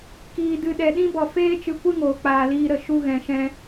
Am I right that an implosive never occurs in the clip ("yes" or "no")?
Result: no